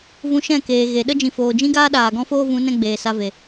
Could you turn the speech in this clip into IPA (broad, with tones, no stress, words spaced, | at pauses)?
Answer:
vũ˧ʃɛ̃˦˨keː˨ ɣe˨ ɗə˦d͡ʒĩ˨ foː˨d͡ʒĩ˦ɡaː˦ ɗaː˨ɡɔ̃˦foː˦ vũ˨˦nɛ̃˧ ɡ͡beː˨sa˧ve˨